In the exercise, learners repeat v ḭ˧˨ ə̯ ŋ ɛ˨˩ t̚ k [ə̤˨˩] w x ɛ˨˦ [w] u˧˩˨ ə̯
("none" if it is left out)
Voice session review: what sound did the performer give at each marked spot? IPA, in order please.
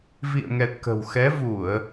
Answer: ə̤˨˩, v

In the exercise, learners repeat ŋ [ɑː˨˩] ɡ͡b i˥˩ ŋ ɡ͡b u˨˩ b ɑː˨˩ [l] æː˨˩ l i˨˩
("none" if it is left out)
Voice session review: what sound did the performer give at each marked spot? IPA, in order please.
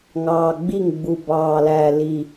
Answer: ɑː˨˩, l

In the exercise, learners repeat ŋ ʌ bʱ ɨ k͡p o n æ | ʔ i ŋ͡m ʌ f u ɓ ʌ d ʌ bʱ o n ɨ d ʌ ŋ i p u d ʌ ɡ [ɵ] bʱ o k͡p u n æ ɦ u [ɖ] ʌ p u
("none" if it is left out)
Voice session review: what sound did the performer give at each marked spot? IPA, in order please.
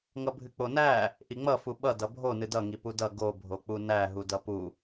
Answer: o, d

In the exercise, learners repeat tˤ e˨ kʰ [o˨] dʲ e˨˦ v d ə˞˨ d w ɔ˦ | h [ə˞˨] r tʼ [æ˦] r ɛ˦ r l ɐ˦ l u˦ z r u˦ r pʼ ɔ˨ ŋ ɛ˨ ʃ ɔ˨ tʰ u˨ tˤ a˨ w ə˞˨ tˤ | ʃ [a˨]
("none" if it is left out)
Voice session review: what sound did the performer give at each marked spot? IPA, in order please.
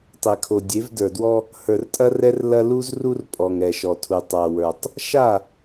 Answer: o˨, ə˞˨, ɐ˦, a˦˨

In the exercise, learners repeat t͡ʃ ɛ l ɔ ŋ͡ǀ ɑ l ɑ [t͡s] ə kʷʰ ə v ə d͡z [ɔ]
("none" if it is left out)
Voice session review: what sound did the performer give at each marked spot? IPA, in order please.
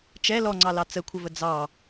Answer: t͡s, ɑ

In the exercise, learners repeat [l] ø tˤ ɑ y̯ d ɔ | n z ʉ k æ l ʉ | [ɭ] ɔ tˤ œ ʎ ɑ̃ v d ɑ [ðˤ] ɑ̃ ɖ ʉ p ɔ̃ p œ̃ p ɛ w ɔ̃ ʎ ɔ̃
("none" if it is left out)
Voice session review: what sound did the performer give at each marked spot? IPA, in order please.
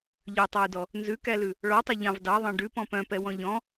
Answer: ʎ, ɭ, ðˤ

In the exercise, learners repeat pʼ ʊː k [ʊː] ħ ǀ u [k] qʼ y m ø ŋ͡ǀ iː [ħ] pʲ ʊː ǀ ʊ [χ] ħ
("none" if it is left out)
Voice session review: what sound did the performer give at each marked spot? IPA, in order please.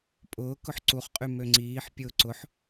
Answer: ʊ, χ, ħ, none

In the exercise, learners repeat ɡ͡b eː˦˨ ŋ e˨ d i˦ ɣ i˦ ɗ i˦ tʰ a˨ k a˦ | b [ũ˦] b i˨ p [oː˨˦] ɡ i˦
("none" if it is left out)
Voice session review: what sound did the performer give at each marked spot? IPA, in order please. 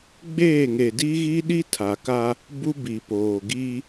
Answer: u˦, oː˨

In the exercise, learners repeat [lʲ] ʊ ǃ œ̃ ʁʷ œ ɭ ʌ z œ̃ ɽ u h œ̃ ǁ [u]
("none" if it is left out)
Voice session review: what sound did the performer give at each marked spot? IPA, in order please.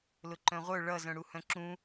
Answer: l, ũ

